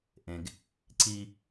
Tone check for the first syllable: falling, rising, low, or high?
low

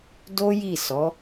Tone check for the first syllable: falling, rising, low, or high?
high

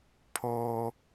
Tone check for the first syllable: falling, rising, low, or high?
high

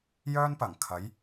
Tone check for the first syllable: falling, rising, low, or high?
high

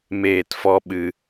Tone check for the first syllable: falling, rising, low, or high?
falling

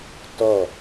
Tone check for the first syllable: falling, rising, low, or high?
falling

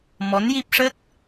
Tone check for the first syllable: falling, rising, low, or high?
rising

